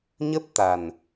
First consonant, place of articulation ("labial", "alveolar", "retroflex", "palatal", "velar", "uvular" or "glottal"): palatal